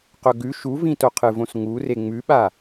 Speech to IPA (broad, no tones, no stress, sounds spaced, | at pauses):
q ɵ ɡ ʉ ʃ u v ĩ t o qʰ ɨ v õ s ŋ u r e ŋ͡m ʉ ɓ a